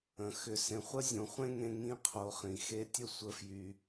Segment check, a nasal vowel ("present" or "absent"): present